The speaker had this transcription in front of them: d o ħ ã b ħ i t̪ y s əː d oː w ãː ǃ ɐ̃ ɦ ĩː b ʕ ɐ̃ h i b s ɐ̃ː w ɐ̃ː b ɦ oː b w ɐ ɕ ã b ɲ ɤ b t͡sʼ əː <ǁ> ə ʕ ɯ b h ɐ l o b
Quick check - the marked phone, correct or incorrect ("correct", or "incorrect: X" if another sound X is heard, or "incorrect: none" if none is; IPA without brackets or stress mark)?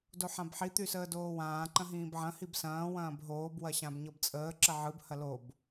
correct